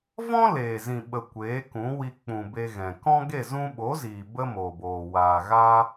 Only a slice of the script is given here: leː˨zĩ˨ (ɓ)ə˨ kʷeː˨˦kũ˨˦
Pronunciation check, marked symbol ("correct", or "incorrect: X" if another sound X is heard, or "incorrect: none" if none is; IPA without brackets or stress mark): correct